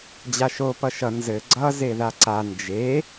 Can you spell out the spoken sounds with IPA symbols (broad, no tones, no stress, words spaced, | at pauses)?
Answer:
d͡ʑaʃo pʌʃʌ nzɘ ɡ͡ǀʌ zeðaǀa nd͡ʒe